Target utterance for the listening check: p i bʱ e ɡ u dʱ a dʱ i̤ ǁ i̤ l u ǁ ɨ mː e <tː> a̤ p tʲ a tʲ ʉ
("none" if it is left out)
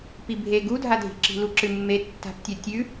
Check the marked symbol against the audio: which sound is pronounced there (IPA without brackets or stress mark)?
tː